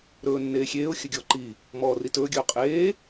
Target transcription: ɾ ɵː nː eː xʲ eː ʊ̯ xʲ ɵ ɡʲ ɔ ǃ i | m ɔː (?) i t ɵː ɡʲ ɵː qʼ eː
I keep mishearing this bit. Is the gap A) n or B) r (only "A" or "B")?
B